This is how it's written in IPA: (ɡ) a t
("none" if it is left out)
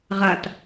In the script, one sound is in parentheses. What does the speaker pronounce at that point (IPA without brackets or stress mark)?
ʁ